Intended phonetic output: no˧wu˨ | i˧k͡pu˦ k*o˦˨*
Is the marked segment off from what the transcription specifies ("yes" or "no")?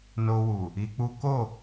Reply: no